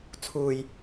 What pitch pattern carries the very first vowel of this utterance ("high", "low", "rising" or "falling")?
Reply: low